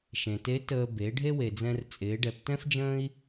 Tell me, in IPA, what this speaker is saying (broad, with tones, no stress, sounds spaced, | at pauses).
ʃ ẽ˩ t e˧˥ t əː˧ b e˩˧ ɖʱ e˥ w e˩ d͡z ɛ̃˧ r t͡sʼ ɪː˩˧ ɖ ɛ˩˧ p t ɛ̃˥ f d͡ʒ ə̃ː˥ i̯